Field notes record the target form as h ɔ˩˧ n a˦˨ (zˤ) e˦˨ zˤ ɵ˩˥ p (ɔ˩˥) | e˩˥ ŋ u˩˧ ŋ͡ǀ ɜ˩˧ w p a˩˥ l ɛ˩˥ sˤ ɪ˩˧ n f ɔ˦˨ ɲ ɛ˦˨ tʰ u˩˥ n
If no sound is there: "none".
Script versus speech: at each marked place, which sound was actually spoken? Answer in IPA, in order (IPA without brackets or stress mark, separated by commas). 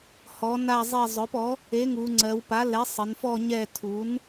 zˤ, ɔ˩˥